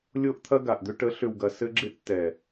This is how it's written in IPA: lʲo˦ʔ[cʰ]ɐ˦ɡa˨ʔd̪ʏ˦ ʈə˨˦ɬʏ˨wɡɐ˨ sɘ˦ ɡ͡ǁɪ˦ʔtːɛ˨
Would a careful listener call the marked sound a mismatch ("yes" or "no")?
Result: yes